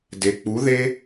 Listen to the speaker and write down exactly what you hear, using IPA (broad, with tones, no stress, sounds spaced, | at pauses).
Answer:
d e˨ k͡p u˨˦ ð e˦